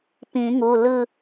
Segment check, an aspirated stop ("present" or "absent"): absent